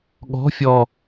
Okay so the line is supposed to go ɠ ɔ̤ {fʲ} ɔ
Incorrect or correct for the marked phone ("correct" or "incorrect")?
correct